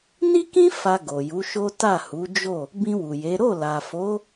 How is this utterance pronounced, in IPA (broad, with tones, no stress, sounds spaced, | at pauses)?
n i˦ k ĩ˦ f a˧ ɡ o˨ j u˨˦ ʃ o˦ t a˦˨ h u˨˦ d͡ʒ o˦˨ | b ĩ˧ w u˨ j e˨˦ ɾ o˦˨ l a˨ f o˨˦